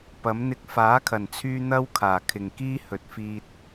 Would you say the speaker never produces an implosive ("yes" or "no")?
yes